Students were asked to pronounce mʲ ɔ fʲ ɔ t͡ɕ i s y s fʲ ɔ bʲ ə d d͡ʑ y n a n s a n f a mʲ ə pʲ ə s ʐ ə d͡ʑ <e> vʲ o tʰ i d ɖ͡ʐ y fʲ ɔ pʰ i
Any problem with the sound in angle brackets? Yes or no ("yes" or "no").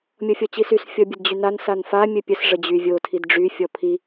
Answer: yes